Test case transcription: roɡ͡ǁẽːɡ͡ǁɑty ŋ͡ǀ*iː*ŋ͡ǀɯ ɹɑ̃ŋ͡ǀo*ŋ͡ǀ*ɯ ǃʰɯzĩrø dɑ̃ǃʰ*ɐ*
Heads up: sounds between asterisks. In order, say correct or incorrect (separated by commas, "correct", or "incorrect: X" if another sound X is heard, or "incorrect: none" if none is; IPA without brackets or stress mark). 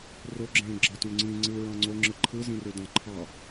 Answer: incorrect: ĩː, incorrect: ŋ͡ǁ, incorrect: ɑ